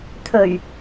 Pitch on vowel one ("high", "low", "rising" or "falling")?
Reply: low